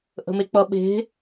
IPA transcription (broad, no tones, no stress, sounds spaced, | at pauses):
ʔ ə̤ m e k͡p ʌ ɓ e̤